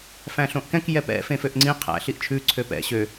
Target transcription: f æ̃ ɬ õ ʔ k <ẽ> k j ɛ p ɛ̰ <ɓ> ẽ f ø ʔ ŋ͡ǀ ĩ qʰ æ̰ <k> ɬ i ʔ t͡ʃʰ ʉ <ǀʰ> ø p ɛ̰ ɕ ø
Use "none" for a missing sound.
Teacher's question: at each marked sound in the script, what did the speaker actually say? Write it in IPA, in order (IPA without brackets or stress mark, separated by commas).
ɛ̃, f, none, ǀʰ